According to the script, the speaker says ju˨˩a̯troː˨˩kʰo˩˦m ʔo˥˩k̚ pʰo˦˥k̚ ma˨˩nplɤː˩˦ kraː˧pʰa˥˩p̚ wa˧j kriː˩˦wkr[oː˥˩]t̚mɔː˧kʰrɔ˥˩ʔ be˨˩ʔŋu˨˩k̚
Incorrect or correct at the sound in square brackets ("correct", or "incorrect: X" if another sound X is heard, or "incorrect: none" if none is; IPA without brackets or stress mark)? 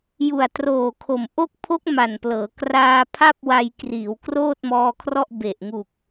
correct